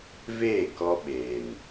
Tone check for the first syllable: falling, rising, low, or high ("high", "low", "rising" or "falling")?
falling